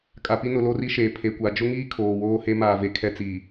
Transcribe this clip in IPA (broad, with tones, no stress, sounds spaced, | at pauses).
kʼ a˨ p i˦ n ʊ˨ l o˦ r i˦ ʃ eː˨ pʰ e˨ kʷ a˨ d͡ʒ ʊ˦ ŋ iː˦ kʰ oː˨ w oː˦ h e˦ m aː˨ v e˨ kʰ ɛ˦ t͡s iː˨